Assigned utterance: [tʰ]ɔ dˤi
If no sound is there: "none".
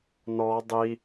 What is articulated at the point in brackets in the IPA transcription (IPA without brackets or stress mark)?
n